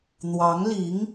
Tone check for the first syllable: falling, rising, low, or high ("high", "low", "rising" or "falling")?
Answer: rising